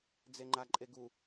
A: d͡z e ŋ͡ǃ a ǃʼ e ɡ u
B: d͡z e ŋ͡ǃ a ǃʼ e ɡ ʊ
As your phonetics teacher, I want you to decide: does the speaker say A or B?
A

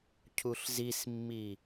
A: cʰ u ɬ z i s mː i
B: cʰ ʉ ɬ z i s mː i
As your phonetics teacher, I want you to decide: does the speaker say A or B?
A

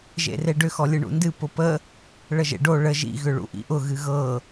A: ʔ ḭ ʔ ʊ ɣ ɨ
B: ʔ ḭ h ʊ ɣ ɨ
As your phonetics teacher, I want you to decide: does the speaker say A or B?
A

